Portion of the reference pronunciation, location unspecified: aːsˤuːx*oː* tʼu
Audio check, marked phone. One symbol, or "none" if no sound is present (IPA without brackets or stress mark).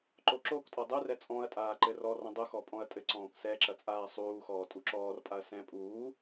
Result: ɔː